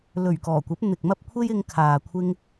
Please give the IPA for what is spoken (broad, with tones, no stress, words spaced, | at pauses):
lɵ˨˩ɥkɔː˨˩kʷɐ˨˥p̚ n̪ɪ˨k̚mɐ˥p̚ kʷʰe˥jɪ˧ŋ kʰaː˨ kʷʰɪ˧ŋ